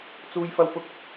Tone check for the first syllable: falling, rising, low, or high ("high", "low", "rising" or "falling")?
high